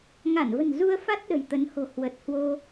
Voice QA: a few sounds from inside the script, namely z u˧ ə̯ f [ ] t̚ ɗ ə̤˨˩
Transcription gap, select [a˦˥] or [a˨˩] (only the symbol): a˦˥